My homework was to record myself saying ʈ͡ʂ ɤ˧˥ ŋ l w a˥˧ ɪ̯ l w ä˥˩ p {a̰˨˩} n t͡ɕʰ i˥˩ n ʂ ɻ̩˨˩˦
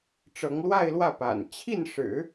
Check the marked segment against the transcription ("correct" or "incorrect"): correct